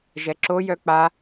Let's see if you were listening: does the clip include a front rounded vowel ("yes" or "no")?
yes